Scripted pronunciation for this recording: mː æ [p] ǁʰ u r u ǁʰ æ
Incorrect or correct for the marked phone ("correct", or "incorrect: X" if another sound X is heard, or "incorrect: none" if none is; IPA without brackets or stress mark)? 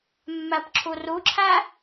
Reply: correct